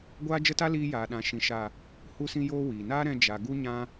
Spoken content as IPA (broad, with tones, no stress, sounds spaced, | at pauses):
ɡʷ aː˦ d͡ʒ ə˦ t a˦ l iː˧ j aː˨ ɗ ã˨ ʃ ĩ˨ ʃ a˨ | h u˧ s ĩ˧ j oː˧ w iː˨ n aː˦ ɾ ɛ̃˧ d͡ʒ a˨ ɡ u˧ ɲ ã˧